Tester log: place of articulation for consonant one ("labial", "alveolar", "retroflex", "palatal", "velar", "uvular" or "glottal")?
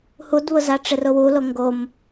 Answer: glottal